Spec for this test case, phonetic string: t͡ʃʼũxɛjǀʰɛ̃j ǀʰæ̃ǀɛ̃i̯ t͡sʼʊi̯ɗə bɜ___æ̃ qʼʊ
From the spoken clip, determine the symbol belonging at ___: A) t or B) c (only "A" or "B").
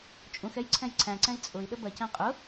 B